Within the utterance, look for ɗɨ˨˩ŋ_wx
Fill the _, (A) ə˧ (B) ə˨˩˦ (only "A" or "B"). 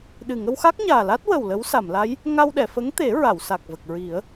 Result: A